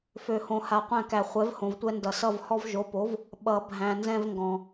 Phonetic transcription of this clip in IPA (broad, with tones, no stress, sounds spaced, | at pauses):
f ø˨ h õ˨ h a˨ qʷ æ̃˦˨ k æ˨ χʷ ɛ˨˥ v h õ˨ v tʷ ɛ˦ n d ʌ˨˩˦ s ʌ˦˨ v h ɔ˦ v ʒ o˨˥ p o˨˥ v | ɓ ʌ˨˩˦ bʱ æ̃˨ n z ɛ̃˦ v ŋ ɡ ɔ̃˨